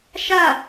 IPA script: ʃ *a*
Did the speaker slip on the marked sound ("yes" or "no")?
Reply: no